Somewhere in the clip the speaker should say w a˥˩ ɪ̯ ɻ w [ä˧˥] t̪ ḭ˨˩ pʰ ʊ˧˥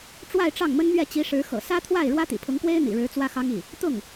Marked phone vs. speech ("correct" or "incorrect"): incorrect